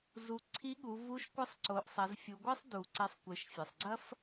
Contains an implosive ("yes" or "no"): yes